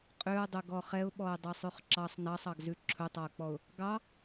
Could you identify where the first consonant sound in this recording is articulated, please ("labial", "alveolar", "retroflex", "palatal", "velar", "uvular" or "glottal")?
uvular